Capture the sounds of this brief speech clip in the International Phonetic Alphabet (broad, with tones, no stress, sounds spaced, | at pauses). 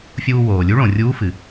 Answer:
fʲ uː˧ w oː˩ lʲ u˧˥ ɭ õ˩ rʲ uː˧˥ f ɨ˩